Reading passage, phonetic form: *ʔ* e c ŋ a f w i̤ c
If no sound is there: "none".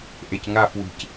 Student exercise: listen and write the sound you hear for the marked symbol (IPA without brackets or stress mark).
ʔ